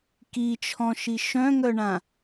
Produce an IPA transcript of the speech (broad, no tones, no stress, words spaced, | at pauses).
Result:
kit͡ʃʰɔ̃ʃi ʃœ̃ŋœɳã